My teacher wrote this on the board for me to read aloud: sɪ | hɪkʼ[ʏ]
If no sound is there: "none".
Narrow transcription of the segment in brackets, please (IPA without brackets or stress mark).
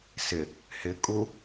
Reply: u